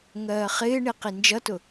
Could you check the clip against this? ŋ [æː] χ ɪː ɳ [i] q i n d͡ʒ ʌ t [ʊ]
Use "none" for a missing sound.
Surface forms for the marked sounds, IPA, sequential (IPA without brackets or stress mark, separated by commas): ɜː, i, ʊ